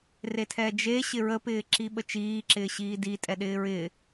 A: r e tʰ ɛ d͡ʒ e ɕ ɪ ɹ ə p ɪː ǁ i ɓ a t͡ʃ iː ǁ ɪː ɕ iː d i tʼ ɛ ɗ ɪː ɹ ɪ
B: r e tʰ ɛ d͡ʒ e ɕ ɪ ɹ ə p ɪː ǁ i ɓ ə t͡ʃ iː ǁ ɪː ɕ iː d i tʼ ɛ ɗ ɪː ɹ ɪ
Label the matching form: B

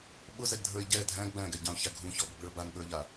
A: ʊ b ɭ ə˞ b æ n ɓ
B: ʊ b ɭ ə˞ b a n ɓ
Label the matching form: B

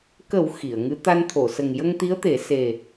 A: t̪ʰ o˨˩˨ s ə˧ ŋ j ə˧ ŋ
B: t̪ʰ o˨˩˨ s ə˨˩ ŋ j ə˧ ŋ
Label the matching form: B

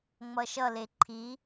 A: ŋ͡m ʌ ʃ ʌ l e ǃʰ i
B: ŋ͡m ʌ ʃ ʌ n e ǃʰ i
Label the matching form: A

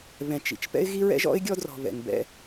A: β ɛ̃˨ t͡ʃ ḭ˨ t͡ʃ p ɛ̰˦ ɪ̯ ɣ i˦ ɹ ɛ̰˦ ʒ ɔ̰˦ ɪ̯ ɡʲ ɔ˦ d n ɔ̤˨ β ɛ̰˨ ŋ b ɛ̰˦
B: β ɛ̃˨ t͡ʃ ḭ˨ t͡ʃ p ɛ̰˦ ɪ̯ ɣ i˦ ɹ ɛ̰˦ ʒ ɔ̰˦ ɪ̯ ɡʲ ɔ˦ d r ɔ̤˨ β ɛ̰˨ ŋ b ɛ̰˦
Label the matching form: B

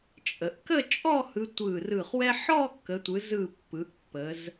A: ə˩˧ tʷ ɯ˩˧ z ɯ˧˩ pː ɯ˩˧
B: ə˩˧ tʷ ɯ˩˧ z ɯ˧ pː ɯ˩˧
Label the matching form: A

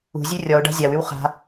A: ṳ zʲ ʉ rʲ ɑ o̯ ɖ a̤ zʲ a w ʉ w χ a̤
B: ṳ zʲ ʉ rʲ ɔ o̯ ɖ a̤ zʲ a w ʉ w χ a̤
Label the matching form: B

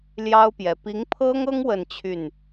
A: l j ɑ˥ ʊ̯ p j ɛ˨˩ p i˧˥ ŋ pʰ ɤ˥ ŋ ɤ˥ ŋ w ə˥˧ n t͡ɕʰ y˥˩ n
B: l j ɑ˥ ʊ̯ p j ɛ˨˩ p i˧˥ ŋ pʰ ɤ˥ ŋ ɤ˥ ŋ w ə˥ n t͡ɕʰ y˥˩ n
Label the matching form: A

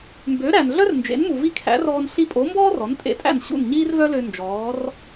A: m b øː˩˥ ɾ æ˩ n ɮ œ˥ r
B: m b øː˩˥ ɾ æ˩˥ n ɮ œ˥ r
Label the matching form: A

